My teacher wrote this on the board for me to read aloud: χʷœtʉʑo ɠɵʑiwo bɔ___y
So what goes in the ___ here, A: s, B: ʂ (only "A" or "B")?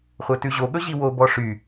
B